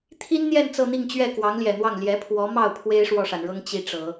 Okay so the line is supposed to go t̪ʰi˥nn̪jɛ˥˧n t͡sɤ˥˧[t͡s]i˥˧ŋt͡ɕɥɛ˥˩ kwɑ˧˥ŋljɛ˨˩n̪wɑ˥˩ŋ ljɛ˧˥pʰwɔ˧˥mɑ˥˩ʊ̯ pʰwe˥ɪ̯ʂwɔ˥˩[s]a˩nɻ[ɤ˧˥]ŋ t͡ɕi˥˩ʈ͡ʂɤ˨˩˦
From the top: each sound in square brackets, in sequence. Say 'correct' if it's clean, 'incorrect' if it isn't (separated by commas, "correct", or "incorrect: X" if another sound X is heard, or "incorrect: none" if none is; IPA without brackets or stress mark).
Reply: incorrect: n̪, incorrect: ʂ, incorrect: ɤ˥